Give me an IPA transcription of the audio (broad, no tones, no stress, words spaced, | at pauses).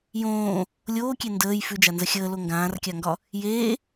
jõː | lʲoːkʲe ndəːj fʉd͡ʒanzə xʲəːlo ŋɡãːrkʲaŋɡɒ | jeː